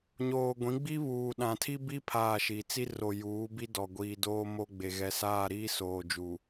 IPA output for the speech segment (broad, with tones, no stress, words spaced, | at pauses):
ɲoː˨ɡʷĩ˨˦ɡ͡bi˦ βuː˨ɗã˨tʰi˦bi˦ pʰaː˦˨ʃi˨ t͡si˦ro˨juː˨˦ bi˦dɔ˨ɡʷiː˨doː˦ mo˦ɡ͡be˨ ɣɛ˨saː˦˨ɾiː˦ soː˨d͡ʒu˨